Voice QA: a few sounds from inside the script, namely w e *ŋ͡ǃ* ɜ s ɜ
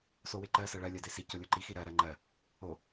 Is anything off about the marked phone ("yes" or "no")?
yes